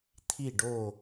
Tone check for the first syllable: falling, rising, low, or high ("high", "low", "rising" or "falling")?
falling